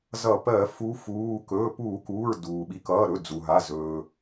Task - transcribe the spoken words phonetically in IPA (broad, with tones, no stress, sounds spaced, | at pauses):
z ʌ˧˩˧ p ɜ˧˩˧ f u˨˦ f uː˩˧˩ k ɵː˩˧˩ p uː˧˩˧ k uː˩˧˩ ɹ d uː˩ ɓ i˨˦ k ʌː˩˧˩ ɾ ɵ˩˧˩ d͡z u˩ ɦ a˩˧˩ z ɵː˩